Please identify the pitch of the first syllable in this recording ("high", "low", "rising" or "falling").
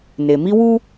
low